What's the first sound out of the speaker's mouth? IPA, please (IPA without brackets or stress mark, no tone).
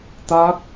t̪